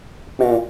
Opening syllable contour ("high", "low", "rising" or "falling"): low